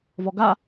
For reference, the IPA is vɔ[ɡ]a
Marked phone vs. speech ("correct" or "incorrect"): correct